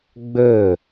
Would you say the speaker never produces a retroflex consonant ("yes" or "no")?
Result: yes